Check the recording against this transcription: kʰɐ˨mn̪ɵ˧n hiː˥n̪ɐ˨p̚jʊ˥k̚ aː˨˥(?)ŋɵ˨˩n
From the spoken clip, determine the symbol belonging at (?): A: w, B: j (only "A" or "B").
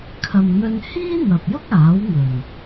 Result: A